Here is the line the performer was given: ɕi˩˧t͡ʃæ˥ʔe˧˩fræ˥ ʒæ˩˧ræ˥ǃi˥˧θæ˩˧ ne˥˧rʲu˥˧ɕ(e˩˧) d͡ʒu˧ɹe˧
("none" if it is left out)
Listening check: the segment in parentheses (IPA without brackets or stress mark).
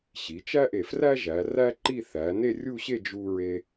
e˥˧